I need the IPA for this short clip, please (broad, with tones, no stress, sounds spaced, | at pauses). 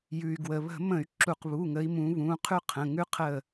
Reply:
j ʉ˩ y̯ ɡ w ə˩ β ə̤˧˩˧ m ə̃˧˩˧ y̯ ǁ u˧˩˧ q β u˩˧˩ ŋ ə˨˦ i̯ m ũ˨˦ β ũ˩˧˩ qʰ ʉ˥ qʰ ə̃˩˧˩ ŋ ʉ˥ qʰ ə˥˩